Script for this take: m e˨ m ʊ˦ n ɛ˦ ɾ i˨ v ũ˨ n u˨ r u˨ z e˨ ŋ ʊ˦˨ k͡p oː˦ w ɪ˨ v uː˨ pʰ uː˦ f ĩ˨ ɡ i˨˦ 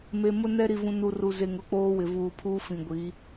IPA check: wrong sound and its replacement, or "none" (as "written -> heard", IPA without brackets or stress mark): ɡ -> ɡʷ